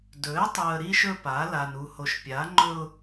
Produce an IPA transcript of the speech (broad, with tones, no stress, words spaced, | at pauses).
dɵ˨˦ɪ̯tˤu˨ə̯ ɾi˦ʃɵ˦pa˨˦ la˨nu˨ho˨ʃ pʲa˨˦ŋ͡ǃɵ˦ʊ̯